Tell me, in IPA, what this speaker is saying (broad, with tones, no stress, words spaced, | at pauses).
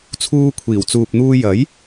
t͡sʰuː˧kʷʰiː˨˩w t͡suː˨p̚n̪uː˧ jɐ˨˥j